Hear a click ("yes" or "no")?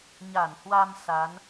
no